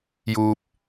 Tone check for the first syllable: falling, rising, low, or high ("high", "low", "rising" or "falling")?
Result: low